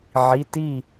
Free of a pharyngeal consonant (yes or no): no